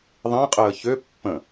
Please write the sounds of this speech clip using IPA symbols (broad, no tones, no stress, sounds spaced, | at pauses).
ðˤ ĩ qʼ əː ç ø pː ə̃